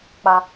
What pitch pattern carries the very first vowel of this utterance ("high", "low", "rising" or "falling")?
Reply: high